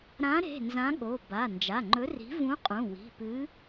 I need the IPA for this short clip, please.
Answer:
ɾã˨˥ɾe̤˩˧˩ nzã˨˥ɠo˩˧˩ ba˩˧˩ nd͡ʒa˩˧˩ŋ͡ǃɵ˨˥ri̤˨˥ vũ˨˥qʼũ˩˧˩ wi̤˩˧˩pɨ˨˥

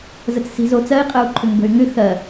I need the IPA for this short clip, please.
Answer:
zət͡ssi̤z ot͡s ɜi̯qʼɜu̯ǃʰʏŋ bə̤y̯ŋʏ xɜ

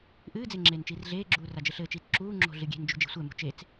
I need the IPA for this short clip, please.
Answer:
ʔɨːd͡ze ŋ͡ǁeːnt͡ʃiːrɮeːɡ͡ǁuː rad͡ʒɘɬɘːt͡ʃiːt͡s ǁuːŋ͡ǁo̤ ɮɨɡʲe̤nd͡ʒṳ d͡ʒe̤sʷɛmṳ t͡ʃet͡s

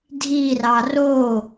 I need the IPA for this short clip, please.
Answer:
dʱirɑ ro

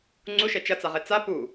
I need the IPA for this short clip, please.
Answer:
ŋ͡ǀuʃɛ t͡ʃɐt͡saʁe t͡sa pu

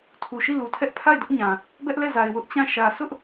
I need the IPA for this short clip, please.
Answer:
tʰu˨ʃi˦˨lu˨tʰɛ˦ʔ pʰa˦˨ɪ̯dʊ˦ʔɲã˨ | bɛ˦ʔlɛ˦˨za˨ɪ̯ wʊ˦ʔt͡ɕã˦˨ ʃä˨sʊ˦ʔ

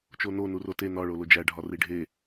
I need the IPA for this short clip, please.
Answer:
t͡ʃono nurote nɒɭo lod͡ʒæɖʱɒ riɖʱe

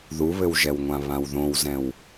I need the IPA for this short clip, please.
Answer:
ðuβɘwʒɛwŋʷã βãwðõwzɛ̃w

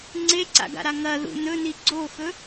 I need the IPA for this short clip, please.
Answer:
ŋ͡ǀeǀa̰ɡa̰ɾa ŋɐðṵ nɵni ɡ͡ǀoxɵ

